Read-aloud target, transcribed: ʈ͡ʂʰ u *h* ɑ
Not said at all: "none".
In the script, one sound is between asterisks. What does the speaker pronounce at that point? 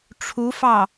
f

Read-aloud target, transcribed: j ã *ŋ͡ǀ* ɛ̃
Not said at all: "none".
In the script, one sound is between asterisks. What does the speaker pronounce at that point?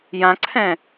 ǀʰ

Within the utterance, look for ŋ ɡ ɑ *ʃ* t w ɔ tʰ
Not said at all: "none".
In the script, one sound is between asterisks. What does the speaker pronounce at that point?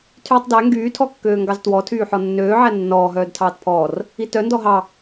z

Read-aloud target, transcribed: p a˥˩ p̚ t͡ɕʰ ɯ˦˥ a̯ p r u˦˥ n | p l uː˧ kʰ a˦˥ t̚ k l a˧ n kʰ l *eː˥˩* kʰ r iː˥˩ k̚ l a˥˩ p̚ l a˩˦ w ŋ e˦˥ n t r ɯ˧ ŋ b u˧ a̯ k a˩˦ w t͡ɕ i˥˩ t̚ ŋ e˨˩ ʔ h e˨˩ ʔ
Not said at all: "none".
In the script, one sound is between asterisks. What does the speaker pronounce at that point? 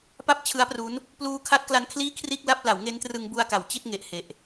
iː˥˩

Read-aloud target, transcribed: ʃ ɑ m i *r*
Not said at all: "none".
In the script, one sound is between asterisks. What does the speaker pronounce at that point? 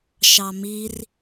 r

